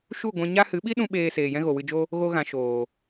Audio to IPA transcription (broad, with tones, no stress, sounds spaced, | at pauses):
ʃ u˦˨ ɡʷ ɛ̃˧ ɲ a˦ h ɨ˨˦ ɓ i˦ ɗ ũ˦ ɓ eː˧ s eː˨ j ɛ̃˦ ɣ o˨ w ɨ˧ d͡ʒ o˦ | ɣ o˧ ɣ ã˨ ʃ oː˨